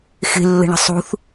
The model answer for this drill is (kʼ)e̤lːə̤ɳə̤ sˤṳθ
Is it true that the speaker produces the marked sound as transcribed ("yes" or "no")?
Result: no